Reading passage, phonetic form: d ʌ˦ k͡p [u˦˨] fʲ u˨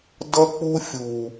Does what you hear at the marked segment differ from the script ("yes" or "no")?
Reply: yes